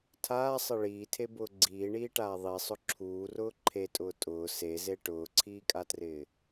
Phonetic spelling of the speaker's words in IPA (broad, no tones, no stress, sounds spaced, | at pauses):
tʰ aː sˤ ɪ ɭ iː tʰ e b ʊː ɡ͡ǀ iː ɳ iː ʈ aː ðˤ i sˤ ʊ ǁʰ uː r ʊː ǃʰ e tʼ ʊː tʼ ʊː s e z e ʈ ʊː ǀʰ iː kʼ a t r ɪː